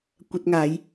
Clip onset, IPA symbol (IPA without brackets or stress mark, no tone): kʷ